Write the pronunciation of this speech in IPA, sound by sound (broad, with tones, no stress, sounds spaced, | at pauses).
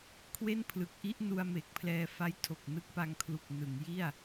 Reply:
kʰ w e˥˩ n pʰ l ɯ˨˩ k̚ ʔ i˥˩ ʔ n u˧ a̯ m e˨˩ k̚ pʰ l ɛː˧ f a˦˥ j tʰ o˨˩ k̚ n ɯ˦˥ k̚ p a˧ ŋ kʰ l u˨˩ k̚ n ɯ˩˦ ŋ j i˥˩ a̯